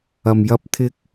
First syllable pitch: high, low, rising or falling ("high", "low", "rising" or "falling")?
low